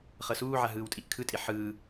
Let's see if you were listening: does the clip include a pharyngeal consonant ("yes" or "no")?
yes